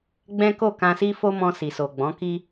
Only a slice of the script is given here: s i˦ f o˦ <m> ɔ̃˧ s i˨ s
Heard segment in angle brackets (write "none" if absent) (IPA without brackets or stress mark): m